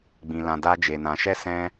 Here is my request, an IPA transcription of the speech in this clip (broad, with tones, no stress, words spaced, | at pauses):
ɡ͡bĩ˨lã˨ da˧d͡ʒe˨nã˨ ʃɛ˧ sɛ̃˧